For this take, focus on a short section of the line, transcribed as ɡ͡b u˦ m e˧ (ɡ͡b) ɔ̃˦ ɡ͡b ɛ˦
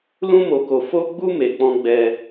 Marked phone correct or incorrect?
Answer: incorrect